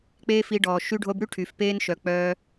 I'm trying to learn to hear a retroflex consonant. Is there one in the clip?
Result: yes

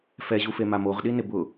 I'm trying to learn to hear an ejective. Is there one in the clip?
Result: no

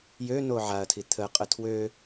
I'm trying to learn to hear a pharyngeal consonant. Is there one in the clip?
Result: yes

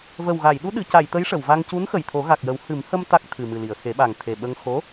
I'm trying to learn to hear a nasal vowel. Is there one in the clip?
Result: no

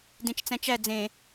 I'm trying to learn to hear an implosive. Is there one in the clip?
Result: no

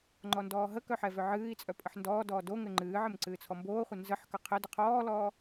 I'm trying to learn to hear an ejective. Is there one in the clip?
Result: yes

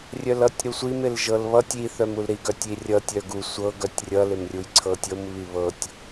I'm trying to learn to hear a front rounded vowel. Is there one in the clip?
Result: yes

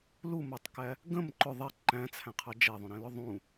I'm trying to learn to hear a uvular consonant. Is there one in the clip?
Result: yes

